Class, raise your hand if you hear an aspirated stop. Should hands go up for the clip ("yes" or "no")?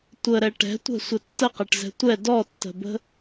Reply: no